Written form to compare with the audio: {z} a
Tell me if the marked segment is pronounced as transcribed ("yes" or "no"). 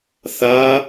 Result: no